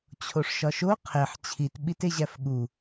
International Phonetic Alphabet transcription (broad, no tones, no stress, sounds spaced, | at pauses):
t͡ɕʰ o ʂ ʃ ɒ ʃ o qʰ e ħ t͡ɕʰ i t ɓ i t e ʑ æ f ɠ u